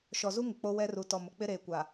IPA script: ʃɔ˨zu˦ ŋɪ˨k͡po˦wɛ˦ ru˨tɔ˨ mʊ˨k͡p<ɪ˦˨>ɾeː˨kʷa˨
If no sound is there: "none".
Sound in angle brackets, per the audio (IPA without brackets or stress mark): ɪ˦